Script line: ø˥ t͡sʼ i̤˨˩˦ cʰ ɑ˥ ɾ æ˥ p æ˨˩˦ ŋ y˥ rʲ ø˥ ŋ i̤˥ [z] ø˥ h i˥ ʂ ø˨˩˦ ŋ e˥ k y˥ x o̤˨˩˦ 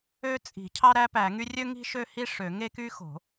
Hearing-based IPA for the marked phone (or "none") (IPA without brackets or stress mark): ʃ